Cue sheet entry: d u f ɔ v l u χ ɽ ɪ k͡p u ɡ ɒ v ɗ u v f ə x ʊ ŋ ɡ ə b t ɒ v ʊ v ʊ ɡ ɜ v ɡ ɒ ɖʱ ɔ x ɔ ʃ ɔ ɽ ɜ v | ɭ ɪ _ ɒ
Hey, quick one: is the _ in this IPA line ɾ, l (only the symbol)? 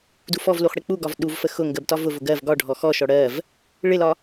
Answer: l